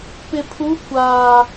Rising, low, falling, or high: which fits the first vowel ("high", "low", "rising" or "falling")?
low